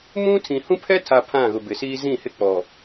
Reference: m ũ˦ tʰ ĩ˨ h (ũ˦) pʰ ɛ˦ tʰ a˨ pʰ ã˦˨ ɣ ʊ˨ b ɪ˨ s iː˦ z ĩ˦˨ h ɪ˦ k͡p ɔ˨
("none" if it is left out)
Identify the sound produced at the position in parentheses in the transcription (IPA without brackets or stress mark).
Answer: ũ˦